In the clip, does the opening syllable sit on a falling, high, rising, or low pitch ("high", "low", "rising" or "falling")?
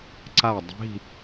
falling